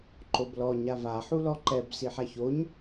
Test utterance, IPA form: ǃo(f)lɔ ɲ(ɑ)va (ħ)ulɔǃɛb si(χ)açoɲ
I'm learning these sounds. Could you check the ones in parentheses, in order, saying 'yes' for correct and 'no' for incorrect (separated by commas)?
no, no, yes, no